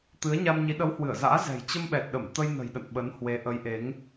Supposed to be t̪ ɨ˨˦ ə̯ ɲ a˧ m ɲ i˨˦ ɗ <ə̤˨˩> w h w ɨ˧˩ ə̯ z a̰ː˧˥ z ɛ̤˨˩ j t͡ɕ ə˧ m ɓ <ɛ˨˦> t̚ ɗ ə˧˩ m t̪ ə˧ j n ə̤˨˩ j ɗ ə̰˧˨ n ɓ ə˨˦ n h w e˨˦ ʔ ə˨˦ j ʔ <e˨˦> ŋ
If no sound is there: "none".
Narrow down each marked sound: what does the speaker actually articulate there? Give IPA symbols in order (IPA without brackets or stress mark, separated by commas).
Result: ə˨˦, ɛ˨˩, e˨˦